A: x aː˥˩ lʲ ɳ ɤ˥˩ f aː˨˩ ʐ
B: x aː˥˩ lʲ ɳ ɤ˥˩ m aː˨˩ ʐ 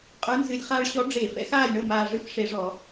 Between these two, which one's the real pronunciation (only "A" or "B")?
B